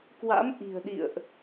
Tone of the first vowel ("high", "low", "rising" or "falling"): rising